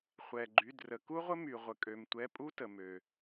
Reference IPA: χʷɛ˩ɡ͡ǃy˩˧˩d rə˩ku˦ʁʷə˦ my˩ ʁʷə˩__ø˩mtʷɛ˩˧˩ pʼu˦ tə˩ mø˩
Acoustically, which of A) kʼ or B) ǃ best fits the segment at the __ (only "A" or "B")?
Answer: A